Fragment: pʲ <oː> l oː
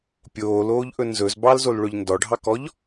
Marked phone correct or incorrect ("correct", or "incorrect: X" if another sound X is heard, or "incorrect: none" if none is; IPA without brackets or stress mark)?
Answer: correct